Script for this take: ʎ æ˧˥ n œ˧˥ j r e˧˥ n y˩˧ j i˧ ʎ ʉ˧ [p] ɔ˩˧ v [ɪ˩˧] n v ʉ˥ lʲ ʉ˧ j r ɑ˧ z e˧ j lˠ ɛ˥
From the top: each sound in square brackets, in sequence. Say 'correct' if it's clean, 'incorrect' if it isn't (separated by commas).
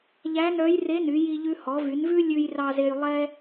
incorrect, incorrect